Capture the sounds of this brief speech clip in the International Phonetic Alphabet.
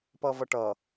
p ʌ v ʌ ʈ ʌ

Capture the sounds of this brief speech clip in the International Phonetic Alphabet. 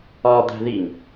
ɒ d̪ æ̤ ð i ŋ

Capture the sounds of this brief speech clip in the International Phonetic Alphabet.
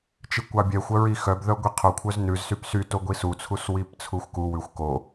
t͡ʃ i kʷ ɑ bʲ ɛ xʷ œ ɹ i x œ b ð œ ɡʷ i qʰ o kʷʰ œ z n ʉ z s y p s y t o ɡʷ i s u t͡sʰ u s w i p t͡sʰ u xʷ k u w ʉ xʷ k o

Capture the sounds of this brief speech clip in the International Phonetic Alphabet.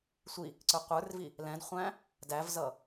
sʷ i | ǀ ə˞ qʷ ə˞ r v i | l ɛ̃ d χʷ æ̃ | d æ v z ʌ

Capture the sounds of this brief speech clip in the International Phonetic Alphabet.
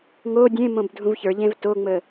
ŋ o dʲ ẽ m õ b dʱ ũ v ç ə˞ ʎ ẽ v t o ŋ͡m ə

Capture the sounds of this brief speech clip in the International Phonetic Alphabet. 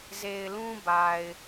z e˨ ɪ̯ l ũ˦ b a˨ ɪ̯

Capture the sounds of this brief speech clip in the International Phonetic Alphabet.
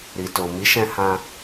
ɾ i˨ t o˨ m i˨˦ ʃ ɛ̃˧ h ã˧

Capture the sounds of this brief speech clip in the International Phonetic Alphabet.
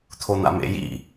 t̪ʰ o n̪ a̰ m ḛ j ḭ

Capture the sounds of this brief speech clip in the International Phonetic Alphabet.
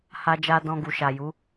h a˦ d͡ʒ a˦ d ɔ̃˧ ɡ u˨ ʃ a˨ j u˨˦

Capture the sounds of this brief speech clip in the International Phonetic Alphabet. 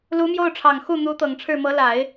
l u˧˥ m j o˥˩ ʊ̯ ʈ͡ʂʰ ɑ˨˩ ŋ x u˥˩ n̪ u˧˥ t̪ ɤ˨˩ ŋ ʈ͡ʂʰ ɻ̩˥˩ m ɤ˧˥ l a˨˩˦ ɪ̯

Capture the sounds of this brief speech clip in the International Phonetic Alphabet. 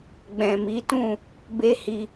ɡ͡b ɛ̃˨ m i˨˦ t ũ˦˨ | b e˦ h i˧

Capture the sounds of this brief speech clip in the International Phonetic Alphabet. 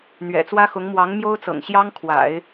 n̪ ɥ ɛ̰˨˩ t͡s w ä˥ x ʊ˧˥ ŋ m w ɑ˧˥ ŋ m j o˥ ʊ̯ t͡s ɤ̰˨˩ ŋ ɕ j ɑ˥ ŋ kʰ w a̰˨˩˦ ɪ̯

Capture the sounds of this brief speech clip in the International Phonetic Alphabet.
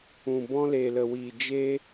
ũ˨ b ɔ̃˧ l e˨ l ə˨ w i˨ d͡ʒ e˧

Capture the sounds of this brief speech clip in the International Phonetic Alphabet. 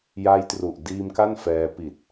j a˧ j t r u˨˩ ʔ d iː˧ m k a˥˩ n f ɛː˧ p i˨˩ t̚

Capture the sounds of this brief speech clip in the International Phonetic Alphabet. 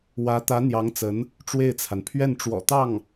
w ä˧˥ t̪ ä˧˥ n̪ j ɑ˧˥ ŋ t͡s ə˧˥ n | ʈ͡ʂ w e˥˩ ɪ̯ t͡sʰ a˩ n pʰ ɥ ɛ˥˩ n ʈ͡ʂ w ɔ̰˨˩ t̪ ɑ˥˩ ŋ

